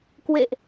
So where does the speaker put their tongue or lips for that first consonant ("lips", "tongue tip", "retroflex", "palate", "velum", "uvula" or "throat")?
velum